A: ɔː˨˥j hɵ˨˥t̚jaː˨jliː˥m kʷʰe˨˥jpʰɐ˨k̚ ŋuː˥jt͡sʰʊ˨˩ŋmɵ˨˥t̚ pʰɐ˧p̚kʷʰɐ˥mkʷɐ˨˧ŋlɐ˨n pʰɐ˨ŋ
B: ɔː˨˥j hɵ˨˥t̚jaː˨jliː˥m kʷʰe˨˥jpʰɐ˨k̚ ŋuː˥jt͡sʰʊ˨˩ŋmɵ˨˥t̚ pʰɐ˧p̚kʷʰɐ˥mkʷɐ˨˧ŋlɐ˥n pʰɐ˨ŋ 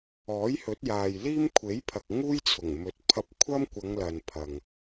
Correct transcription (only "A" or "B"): A